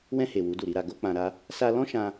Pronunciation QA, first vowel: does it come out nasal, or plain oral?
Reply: nasal